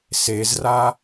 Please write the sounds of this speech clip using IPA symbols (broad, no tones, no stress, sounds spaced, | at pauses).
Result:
s e z r a